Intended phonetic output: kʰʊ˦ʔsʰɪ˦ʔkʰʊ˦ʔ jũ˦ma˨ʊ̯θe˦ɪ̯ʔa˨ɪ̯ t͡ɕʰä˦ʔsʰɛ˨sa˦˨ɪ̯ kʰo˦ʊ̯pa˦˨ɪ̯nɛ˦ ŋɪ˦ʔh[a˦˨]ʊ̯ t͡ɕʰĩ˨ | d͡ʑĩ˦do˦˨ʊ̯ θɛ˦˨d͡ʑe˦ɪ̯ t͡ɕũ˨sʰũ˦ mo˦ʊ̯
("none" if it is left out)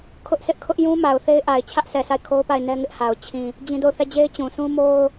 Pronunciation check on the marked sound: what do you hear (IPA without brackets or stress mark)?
a˨